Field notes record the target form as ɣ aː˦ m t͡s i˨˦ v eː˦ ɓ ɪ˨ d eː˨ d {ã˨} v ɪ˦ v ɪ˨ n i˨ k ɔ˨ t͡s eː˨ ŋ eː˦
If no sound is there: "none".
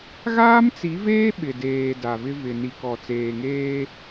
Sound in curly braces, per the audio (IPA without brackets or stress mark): a˨